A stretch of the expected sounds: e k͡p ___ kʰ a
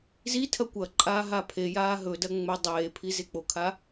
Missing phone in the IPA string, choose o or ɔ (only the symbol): o